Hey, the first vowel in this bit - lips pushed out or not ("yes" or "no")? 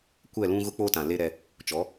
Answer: no